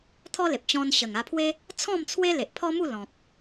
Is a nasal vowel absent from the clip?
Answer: no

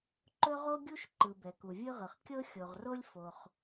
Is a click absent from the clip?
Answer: no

